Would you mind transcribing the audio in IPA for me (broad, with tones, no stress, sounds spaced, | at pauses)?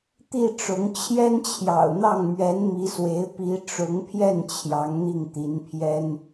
t̪ i˥˩ ʈ͡ʂ ʊ˧˥ ŋ t͡ɕʰ j ɛ˥ n t͡ɕʰ j ɑ̰˨˩ ʊ̯ n̪ ɑ˥˩ ŋ m ɥ ɛ˧˥ n m i˧˥ s w e˧˥ ɪ̯ p i˧˥ ʈ͡ʂ ʊ˧˥ ŋ pʰ j ɛ˥˩ n t͡ɕʰ j ɑ˧˥ ŋ n̪ i˥˩ ŋ t̪ i˧˥ n pʰ j ɛ˥ n